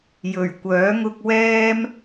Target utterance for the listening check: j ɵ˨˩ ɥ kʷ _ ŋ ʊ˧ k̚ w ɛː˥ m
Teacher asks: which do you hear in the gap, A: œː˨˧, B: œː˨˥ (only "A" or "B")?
B